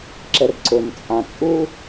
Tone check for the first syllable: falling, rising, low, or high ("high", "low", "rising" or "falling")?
low